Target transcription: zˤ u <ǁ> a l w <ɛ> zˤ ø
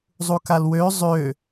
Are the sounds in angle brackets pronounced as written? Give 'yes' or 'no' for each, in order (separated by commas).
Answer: no, no